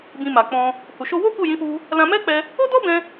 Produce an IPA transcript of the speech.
b ĩ˧ m a˨ k͡p ɔ̃˧ | h u˨ ʃ o˧ w o˦ k u˦˨ j ĩ˨˦ f u˧ | l ã˧ m ɛ˦ k͡p ɛ˧ | o˦ d ɔ˦ b ɛ̃˧

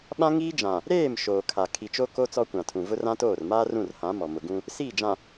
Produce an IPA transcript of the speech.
ɓ ã˦ ŋ iː˦ d͡ʒ ã˨ | ɾ eː˦˨ m ʃ oː˨ kʰ a˨ kʰ i˨ t͡ʃ o˦ k o˦ t͡s ɔ˦ kʷ ã˨ tʰ ũ˨ v ʊ˦ r ã˦ t oː˦˨ r m aː˦ r ũ˦˨ r h ã˨˦ m ɔ˨ m ʊ˨ ɡ ũ˦ | s iː˦˨ d͡ʒ ã˨

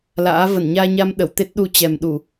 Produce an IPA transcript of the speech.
l a̰ː˧˥ v ə˧˩ n ɲ aː˧ ɲ a˧ m ɗ ə˧˩ w t̪ e˦˥ t̚ ɗ u˧ t͡ɕ ɛ˨˩ m ɗ u˧˩˨

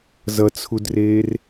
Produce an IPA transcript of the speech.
z ʌ t͡sʰ u d r eː r

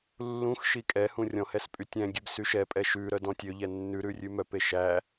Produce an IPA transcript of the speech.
lː ũ x ʃ i kʼ ɛ h ũ rʲ ɔ̃ h ɛ s pʼ y tʲ ɛ̃ ɡʲ e b s y ʃ ɛ pʼ ɛ ʃ ʉ ɾ œ d ɔ̃ tʲ ø ʎ ɛ nː ʉ ɾ ʉ rʲ ʉ m œ p e ʃ æ

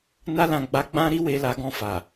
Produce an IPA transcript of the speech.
n a˧ l ã˨ ɡ͡b a˧ ɡ͡b ã˦ ɾ i˦ w e˧ l a˧ ɡ ɔ̃˧ f a˨

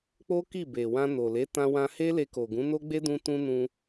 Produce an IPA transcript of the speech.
k͡p o˦ k i˦˨ b e˨ w ã˧ n o˨ l e˨˦ t ã˧ w ã˧ h e˦ l e˧ k o˨ ɡ ũ˨˦ n o˦ ɡ͡b e˦ d ũ˧ t ũ˦ n ũ˧

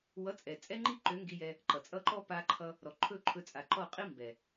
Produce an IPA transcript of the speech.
w ʌ˨˦ t͡sʼ ɛ˨ t͡sʼ ɛ˦ ŋ͡ǃ i˦ ǃ ø˨˦ ŋ ɡ i˧ j ɛ˧ | ǃ ʌ˨ t͡sʼ ʌ˦˨ ǃ ɔ˦ p a˧ ǃʰ ʌ˧ | ɾ ɔ˨ ǃʰ ɵ˦˨ ǃʰ ɵ˧ t͡sʼ a˨ ǃ ɔ˦˨ qʼ i˦ m b ɛ˨

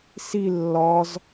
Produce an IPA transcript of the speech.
s i lː ɒ z

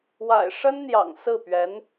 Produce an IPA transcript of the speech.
w a̰˨˩ ɪ̯ ʂ ə˥ n n̪ j ɑ̰˨˩ ŋ s ɹ̩˥˩ p ɥ ɛ˧˥ n

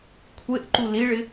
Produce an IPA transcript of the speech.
kʷʰ e ʔ ǃ u l i ɭ ɪ

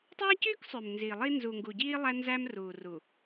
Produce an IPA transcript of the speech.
tˤ æ˦ c yː˦ k sˤ ø˨ m n z i˨ lˠ i˦ n z u˨ ŋ ɡ u˨ ɟ iː˦ lˠ æ˦ n z æ˦ m r uː˨ r u˨

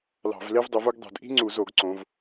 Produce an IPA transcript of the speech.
l ɑ̤˧˩˧ v l e˥ v dˤ u˨˦ v u˥ ɡ dˤ ṳ˧˩˧ d ʔ i̤˥ ŋ͡ǀ u˧˩˧ z o˧˩˧ ɡ ǀ õ˨˦ v

